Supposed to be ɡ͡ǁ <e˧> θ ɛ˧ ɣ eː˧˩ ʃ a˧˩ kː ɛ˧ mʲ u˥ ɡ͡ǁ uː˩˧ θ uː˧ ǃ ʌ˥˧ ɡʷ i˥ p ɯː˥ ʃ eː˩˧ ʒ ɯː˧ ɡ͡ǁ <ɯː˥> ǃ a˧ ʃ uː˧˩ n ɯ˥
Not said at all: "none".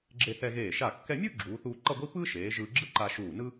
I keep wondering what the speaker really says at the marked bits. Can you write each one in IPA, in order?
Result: e˧, ɯ˥

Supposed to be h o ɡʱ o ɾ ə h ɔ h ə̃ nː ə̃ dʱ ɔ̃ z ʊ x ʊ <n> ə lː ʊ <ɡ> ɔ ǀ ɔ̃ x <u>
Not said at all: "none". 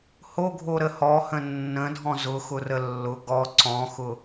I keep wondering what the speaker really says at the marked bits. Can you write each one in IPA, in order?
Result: r, ɡ, ʊ

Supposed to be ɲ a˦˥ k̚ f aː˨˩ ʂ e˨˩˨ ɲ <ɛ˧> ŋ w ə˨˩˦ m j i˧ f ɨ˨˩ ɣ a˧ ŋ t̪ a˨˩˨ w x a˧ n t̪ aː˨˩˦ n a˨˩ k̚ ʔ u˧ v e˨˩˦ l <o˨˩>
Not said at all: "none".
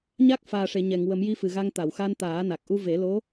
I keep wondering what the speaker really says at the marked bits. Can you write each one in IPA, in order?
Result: ɛ˨˩˨, o˧˥

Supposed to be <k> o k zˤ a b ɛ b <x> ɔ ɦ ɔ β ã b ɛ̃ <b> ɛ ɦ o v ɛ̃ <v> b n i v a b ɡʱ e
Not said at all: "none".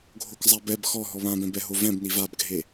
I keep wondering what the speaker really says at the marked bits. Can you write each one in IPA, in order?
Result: ɡʱ, x, b, none

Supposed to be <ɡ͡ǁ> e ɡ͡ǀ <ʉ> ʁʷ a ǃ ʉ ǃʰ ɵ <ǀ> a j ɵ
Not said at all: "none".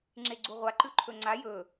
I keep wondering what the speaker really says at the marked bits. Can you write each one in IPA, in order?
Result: ŋ͡ǁ, u, ŋ͡ǀ

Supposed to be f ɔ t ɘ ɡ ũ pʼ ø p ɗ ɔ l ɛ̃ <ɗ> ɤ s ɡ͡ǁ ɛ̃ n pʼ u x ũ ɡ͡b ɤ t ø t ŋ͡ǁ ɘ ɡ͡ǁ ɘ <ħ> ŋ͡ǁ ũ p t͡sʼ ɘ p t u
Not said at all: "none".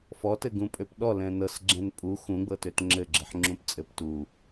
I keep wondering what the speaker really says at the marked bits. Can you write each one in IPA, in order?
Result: n, ħ

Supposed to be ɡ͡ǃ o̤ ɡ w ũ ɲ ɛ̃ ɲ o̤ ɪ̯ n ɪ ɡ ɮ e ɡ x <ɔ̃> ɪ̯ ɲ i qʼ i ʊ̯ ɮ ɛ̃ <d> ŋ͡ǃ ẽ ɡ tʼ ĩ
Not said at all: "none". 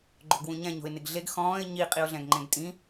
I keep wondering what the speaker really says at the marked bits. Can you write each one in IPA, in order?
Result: ɔ̃ː, ɡ

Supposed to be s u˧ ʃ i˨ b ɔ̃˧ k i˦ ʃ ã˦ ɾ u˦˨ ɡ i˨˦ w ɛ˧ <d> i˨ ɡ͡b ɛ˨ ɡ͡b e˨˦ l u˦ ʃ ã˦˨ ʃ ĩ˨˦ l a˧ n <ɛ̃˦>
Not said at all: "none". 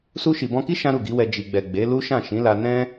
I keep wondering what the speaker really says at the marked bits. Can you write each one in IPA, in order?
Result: d͡ʒ, ɛ̃˦

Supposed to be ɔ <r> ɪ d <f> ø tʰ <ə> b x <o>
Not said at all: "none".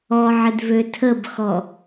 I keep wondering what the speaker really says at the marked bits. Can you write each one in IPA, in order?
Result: ʕ, v, ə, ɔ

